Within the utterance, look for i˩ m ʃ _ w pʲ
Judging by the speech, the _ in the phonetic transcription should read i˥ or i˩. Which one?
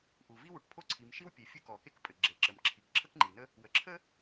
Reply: i˥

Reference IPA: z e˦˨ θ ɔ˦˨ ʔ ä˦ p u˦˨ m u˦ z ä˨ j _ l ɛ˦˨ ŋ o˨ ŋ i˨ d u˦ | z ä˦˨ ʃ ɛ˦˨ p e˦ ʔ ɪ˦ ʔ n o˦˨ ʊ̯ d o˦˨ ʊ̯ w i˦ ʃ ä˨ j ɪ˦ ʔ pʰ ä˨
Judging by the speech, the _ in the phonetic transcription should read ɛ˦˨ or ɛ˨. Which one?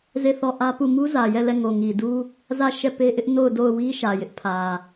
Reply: ɛ˦˨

